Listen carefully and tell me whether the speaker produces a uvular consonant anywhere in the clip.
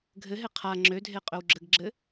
yes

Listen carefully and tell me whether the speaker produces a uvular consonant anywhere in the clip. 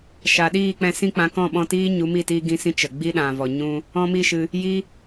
no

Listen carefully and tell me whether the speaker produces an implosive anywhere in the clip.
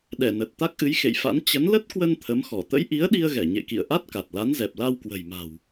yes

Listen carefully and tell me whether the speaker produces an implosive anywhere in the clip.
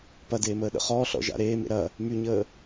yes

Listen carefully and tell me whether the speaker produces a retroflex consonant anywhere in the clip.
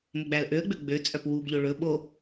yes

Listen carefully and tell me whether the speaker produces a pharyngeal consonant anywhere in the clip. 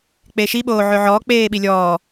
yes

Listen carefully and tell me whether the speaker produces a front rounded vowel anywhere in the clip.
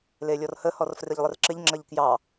no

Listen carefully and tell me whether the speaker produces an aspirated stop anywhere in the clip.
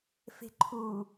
yes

